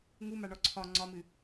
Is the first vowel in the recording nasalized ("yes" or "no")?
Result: no